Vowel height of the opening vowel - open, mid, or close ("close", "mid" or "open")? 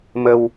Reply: mid